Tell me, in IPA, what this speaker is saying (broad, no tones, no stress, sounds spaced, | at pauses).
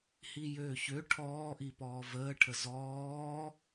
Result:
h i j øː ç ø ʈʰ ɔː ʔ i p ɔː v əː ʈʰ ə z ɔː